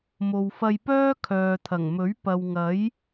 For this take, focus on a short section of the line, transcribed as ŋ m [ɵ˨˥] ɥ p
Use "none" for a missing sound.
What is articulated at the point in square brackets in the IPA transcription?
ɵ˨˥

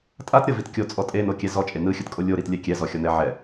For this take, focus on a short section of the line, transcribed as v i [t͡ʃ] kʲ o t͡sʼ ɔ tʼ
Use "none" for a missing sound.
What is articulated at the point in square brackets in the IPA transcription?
t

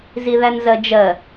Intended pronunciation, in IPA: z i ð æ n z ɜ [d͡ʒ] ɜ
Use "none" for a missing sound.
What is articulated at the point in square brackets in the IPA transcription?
d͡ʒ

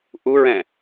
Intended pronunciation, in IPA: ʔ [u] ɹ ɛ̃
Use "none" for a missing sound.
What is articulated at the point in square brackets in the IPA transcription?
u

